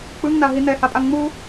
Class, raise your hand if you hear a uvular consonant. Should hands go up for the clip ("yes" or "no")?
no